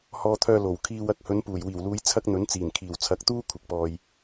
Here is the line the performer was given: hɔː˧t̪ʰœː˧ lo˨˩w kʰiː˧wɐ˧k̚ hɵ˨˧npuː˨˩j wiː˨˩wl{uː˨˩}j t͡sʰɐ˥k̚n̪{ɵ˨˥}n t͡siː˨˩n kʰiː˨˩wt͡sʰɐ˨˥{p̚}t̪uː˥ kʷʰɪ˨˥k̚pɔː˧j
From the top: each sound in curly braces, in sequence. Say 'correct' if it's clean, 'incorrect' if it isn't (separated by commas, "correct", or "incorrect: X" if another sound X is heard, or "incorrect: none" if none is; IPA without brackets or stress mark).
incorrect: uː˨˧, correct, incorrect: k̚